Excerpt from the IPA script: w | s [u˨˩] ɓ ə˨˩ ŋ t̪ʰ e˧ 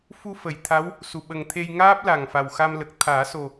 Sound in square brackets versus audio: correct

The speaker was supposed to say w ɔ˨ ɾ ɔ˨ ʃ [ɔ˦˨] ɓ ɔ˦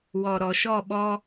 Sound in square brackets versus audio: correct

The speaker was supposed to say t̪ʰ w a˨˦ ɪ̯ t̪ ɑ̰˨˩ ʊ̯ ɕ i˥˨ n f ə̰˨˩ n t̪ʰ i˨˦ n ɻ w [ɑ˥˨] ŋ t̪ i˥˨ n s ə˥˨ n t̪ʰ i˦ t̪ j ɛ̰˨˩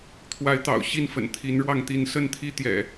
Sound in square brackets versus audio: correct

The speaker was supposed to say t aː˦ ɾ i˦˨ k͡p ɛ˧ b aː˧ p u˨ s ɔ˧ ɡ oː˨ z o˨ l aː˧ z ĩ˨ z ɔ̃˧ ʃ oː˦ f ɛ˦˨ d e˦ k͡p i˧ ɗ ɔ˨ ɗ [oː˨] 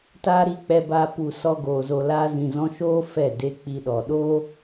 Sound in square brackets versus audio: incorrect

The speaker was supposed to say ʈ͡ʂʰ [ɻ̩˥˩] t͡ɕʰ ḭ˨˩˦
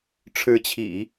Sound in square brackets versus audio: incorrect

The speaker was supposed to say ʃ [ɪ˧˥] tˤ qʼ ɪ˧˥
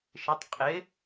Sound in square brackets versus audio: correct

